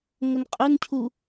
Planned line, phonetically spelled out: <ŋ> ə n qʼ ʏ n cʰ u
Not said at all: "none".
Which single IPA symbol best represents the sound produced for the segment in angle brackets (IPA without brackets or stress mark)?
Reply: ŋ